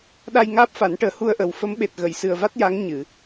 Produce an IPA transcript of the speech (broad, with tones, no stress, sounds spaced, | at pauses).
ɗ a˧ j ŋ aː˦˥ p̚ f a˨˩˦ n ʈ əː˨˩ h u˧ ə̯ ʔ ə˨˩ w f ə˧˥ m ɓ e˨˩ t̚ ɣ ə˨˩˨ j s ɨ˨˩ ə̯ v a˦˥ t̚ j a˧˥ ŋ ɲ ɨ˨˩˨